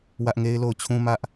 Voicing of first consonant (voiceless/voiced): voiced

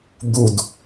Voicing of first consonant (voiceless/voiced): voiced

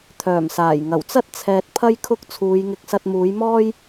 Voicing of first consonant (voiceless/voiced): voiceless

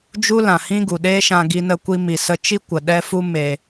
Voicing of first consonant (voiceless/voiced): voiced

